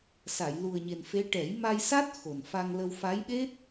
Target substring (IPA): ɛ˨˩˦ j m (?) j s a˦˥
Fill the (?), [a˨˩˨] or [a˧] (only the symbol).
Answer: a˧